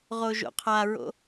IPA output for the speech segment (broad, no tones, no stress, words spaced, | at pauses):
ʁoʒo̰qʰaɹo̰